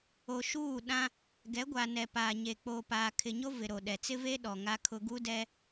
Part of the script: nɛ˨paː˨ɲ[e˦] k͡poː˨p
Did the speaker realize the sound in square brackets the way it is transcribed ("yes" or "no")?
no